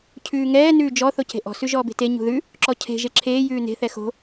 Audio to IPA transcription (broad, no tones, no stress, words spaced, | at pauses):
cʰʉːŋɛː nʉːd͡ʒɔ θoce̤ʔɔ̤ sʉʒɔːbe̤te ɲṳðʉ | ǁɔcʰe̤ ʒeǁʰeː jʉːne̤ θɛxo̤